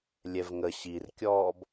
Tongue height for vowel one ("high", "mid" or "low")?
mid